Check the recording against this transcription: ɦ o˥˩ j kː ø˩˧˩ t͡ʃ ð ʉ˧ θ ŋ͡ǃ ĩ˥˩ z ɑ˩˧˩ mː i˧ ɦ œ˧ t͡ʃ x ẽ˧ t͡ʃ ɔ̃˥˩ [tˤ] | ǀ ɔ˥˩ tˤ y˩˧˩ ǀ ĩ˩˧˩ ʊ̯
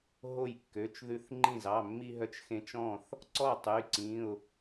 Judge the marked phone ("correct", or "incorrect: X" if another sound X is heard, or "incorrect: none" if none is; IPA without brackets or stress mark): incorrect: θ